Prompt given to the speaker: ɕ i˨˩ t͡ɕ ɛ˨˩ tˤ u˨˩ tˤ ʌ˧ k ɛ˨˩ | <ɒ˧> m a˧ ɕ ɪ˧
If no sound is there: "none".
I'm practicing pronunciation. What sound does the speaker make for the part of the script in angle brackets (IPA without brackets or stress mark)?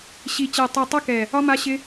ɒ˧